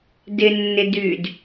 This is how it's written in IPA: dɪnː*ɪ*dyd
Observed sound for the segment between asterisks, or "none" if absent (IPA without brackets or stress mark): ɪ